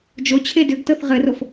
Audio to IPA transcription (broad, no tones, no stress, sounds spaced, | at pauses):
d͡ʒ o t͡ɕʰ e d ʏ ɡ t ɤ θ ʁ ɘ r o f